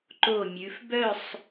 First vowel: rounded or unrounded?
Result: rounded